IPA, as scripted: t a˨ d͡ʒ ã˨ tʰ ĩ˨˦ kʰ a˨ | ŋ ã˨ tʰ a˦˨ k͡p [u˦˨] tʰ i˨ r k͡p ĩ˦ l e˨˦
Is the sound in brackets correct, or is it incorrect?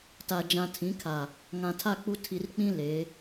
incorrect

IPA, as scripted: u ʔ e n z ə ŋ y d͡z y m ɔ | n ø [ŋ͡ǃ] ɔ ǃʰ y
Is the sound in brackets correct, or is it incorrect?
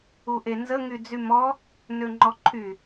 correct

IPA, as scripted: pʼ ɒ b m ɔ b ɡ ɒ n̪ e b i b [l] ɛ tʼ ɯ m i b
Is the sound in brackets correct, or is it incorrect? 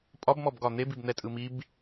incorrect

